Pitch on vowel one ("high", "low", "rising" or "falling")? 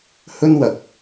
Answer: high